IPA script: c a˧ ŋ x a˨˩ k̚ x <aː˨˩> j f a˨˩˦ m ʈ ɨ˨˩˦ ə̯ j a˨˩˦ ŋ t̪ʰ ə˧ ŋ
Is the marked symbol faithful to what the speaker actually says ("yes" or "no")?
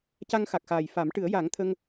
yes